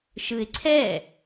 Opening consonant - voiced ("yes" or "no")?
no